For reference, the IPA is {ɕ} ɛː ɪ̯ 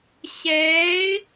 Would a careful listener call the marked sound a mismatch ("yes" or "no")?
no